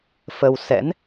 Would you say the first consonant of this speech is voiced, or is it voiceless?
voiceless